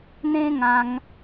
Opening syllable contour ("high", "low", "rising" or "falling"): high